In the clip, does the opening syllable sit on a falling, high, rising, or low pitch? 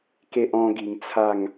high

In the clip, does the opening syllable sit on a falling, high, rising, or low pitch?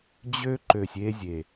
high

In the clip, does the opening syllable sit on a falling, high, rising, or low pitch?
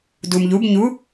low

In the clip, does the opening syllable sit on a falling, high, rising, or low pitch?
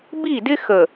falling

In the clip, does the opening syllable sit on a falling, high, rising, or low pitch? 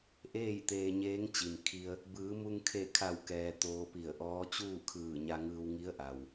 falling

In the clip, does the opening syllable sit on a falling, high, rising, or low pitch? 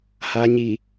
low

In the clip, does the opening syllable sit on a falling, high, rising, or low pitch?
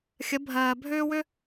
rising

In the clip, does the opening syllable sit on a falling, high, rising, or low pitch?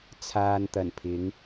low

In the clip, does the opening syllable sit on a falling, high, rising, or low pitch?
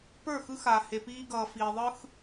falling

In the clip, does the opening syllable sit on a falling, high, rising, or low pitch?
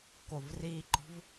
low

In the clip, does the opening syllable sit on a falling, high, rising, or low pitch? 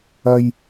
low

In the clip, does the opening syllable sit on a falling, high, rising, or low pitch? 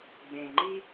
low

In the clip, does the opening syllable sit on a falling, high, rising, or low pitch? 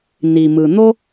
low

